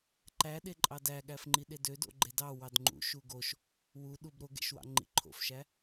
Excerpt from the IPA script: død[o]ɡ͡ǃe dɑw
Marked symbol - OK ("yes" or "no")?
no